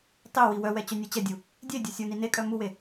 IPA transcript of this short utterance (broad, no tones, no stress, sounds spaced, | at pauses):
tˤ e w i w œ w ɛ t͡ɕ œ nʲ ɐ t͡ɕ ɐ dʲ u | dʲ e dʲ ɐ sʲ u n i n e kʼ œ m u w e